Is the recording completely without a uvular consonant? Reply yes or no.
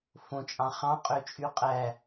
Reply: no